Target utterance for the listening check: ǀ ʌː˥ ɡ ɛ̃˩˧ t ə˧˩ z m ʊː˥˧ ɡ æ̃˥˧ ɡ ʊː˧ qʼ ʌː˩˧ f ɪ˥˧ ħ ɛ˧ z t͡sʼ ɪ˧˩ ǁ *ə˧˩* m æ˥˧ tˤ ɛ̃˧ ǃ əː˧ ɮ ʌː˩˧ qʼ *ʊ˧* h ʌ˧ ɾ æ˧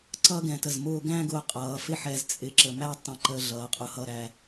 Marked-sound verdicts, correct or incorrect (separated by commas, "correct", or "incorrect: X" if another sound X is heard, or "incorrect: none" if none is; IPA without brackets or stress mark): correct, correct